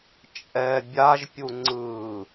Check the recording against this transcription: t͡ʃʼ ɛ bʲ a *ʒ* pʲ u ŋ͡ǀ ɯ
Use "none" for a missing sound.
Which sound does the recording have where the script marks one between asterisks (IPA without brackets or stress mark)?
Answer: ʒ